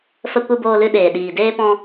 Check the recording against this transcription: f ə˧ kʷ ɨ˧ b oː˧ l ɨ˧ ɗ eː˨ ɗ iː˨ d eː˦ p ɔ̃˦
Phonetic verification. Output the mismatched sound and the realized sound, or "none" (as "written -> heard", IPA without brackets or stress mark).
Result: none